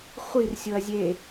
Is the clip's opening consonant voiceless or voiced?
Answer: voiceless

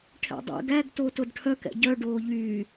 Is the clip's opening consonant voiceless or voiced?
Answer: voiceless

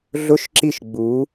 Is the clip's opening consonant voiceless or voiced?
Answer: voiced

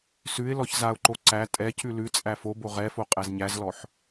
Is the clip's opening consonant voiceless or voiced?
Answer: voiceless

